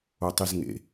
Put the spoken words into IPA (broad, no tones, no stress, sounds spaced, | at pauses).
o tˤ i z ŋ ḛ